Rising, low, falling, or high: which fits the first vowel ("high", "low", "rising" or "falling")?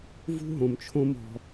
high